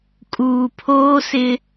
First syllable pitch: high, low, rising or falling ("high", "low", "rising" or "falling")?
low